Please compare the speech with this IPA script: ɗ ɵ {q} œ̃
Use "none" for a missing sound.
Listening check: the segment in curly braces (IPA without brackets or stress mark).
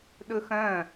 x